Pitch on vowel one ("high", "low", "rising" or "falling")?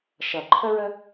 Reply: low